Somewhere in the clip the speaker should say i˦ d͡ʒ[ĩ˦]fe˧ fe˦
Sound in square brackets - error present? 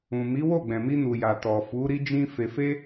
no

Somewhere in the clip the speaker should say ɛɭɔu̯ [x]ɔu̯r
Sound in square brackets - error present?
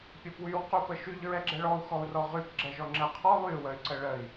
no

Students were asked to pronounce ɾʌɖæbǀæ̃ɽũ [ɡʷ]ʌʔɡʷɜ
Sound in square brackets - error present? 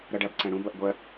yes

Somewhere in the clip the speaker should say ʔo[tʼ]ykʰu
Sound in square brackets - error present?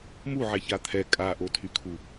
yes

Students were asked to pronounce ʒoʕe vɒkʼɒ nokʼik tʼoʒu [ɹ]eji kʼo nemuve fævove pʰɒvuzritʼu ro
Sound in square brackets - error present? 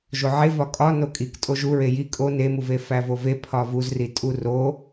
no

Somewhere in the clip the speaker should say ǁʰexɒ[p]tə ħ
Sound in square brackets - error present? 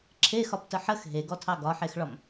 no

